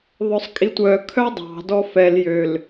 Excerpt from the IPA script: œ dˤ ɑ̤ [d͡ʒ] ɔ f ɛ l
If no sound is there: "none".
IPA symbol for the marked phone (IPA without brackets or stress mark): d